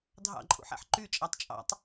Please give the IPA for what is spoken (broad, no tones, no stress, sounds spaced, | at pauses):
dʱ ɑ̰ ǃʼ ṵ ħ æ̰ ħ ǃ y t͡ʃʼ æ tˤ t͡ʃʼ ɑ̰ tˤ